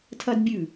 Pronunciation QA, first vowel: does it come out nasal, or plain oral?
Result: oral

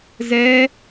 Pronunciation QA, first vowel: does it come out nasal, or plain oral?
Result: oral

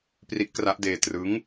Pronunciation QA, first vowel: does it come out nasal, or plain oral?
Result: oral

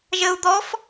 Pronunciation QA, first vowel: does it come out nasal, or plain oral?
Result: oral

